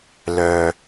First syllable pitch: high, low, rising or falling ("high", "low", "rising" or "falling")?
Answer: low